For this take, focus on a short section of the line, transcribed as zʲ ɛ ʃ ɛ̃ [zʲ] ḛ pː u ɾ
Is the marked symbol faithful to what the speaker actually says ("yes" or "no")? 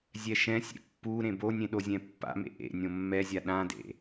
no